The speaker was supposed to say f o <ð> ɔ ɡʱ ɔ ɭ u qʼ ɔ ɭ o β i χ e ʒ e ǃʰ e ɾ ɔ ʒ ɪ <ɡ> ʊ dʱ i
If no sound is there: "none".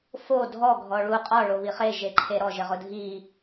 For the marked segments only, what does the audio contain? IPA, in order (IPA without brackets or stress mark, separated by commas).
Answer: dʱ, ʁ